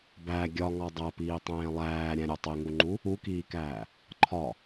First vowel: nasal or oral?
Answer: oral